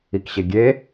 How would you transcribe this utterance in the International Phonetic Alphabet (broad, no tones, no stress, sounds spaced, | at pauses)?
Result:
i k ɕ e ɡʲ e